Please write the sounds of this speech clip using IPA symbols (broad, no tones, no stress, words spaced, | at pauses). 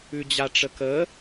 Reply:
ʉd͡ʑaʈ͡ʂəkə